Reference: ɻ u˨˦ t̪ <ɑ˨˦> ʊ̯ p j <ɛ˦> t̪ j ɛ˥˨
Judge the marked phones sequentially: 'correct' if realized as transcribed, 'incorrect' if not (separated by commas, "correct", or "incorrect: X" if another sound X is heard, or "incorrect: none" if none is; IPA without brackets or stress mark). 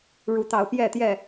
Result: correct, incorrect: ɛ˥˨